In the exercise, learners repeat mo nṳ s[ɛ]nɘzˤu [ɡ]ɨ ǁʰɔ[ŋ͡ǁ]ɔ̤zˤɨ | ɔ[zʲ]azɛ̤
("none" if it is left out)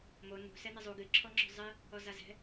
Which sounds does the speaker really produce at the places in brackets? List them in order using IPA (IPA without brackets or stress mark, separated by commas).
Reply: ɛ, ɡ, ŋ͡ǁ, z